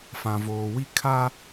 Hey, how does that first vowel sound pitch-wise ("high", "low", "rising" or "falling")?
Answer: low